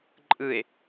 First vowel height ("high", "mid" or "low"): high